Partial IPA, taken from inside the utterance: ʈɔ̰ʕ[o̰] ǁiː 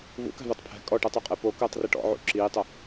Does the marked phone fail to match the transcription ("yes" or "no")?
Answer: yes